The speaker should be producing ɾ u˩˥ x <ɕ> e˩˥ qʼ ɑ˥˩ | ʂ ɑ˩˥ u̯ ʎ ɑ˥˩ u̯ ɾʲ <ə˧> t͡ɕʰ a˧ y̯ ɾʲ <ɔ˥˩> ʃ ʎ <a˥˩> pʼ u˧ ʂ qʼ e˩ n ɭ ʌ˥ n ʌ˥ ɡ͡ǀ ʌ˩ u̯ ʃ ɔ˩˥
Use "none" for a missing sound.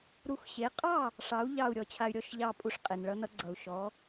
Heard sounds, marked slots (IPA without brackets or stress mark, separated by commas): ɕ, ɔ˧, ɔ˥˩, ɑ˥˩